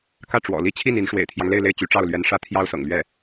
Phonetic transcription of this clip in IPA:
k ä˥˩ ʈ͡ʂ w ɔ̰˨˩ l i˥ t͡ɕʰ i˥˩ n i˧˥ n ʂ w ḛ˨˩ ɪ̯ t̪ʰ j ɑ˦ ŋ l e˥˧ ɪ̯ l e˥˩ ɪ̯ t͡ɕ y˧˥ ʈ͡ʂ ɑ˥˩ ʊ̯ l ɥ ɛ˧˥ n ʂ ä˥ t̪ʰ j ɑ˥ ʊ̯ s ɤ̰˨˩ ŋ l ɥ ɛ˥˩

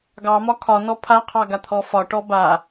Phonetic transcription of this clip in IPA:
ɡ ɑ m ɒ kʰ ɒ n ɔ pʰ a qʰ ɑ ɡ a t̪ʰ ɔ f ɒ ʈ ɔ b a

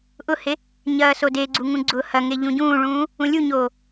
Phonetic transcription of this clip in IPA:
ʔ ʊ h e | ɲ ɐː s o d e ɡ͡ǀ u ŋ ũ ɡ͡ǀ ʊː h ɐ ŋ e ʎ ũ ɟ ũː ɭ ũː | ũ lʲ u ɲ oː

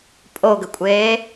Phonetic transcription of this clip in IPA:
pʼ o ɡ ə kʷʼ eː

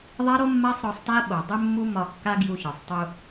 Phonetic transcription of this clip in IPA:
ðˤ a˦ ɾ o˦ mː a˦ sˤ ɾ ɒ˧ sˤ t a˦ ɓ o˨ dˤ ɪ˦ mː u˦ m ɒ˧ kː a˦ ɡ j u˧ ç ɒ˨ sˤ tˤ u˧

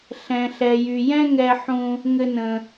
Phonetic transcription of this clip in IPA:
ɬ ɛ̃˩ ɬ ɛ˩ j y˩ j ɛ̃˦ ŋ ɛ˨ ħ ũ˨ | ŋ ɘ˨ n ə̃˩

